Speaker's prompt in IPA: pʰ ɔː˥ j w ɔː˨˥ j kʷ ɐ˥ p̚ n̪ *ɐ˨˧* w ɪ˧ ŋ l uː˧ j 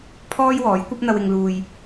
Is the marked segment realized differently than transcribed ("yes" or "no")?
yes